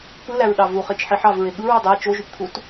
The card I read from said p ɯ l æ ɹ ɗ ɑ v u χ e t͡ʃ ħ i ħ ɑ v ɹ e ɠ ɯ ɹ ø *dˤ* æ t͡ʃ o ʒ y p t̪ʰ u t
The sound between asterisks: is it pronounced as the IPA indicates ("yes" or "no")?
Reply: yes